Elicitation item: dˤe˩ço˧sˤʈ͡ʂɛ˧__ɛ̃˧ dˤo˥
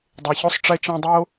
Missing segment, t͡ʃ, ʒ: t͡ʃ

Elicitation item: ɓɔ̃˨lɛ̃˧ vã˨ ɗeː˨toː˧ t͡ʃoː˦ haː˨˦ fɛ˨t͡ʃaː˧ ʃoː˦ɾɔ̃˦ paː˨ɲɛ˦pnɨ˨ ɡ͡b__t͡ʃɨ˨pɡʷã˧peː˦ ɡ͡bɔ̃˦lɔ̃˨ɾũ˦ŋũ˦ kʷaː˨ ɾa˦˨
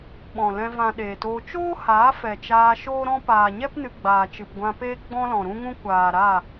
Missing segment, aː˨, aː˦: aː˨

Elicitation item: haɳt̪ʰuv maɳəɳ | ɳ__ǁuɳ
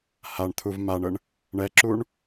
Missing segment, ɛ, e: ɛ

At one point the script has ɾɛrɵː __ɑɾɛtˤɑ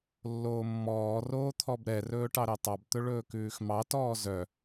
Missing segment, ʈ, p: ʈ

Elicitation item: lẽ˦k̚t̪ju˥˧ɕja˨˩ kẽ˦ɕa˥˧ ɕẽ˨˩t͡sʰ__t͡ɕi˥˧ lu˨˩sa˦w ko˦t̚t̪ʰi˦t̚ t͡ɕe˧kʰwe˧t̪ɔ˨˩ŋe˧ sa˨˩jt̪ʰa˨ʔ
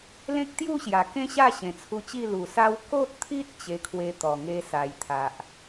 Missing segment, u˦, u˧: u˧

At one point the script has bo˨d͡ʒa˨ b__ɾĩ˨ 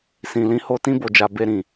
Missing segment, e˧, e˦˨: e˧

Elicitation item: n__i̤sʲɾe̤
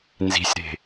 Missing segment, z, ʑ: z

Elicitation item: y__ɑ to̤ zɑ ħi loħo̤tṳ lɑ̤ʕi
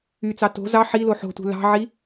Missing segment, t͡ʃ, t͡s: t͡s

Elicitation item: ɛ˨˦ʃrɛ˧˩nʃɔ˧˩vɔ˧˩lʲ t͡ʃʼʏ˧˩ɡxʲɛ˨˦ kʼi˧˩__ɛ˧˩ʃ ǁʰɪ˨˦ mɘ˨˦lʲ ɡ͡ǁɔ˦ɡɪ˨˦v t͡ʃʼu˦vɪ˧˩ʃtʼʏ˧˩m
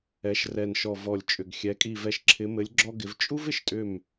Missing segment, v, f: v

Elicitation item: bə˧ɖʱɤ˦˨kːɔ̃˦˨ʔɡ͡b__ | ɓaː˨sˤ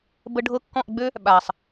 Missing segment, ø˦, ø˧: ø˦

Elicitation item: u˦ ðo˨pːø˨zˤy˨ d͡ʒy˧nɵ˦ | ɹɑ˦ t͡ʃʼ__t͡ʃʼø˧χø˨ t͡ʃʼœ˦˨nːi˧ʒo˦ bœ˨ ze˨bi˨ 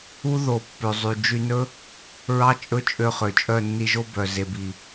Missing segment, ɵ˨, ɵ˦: ɵ˦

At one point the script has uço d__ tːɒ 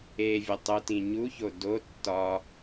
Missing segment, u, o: o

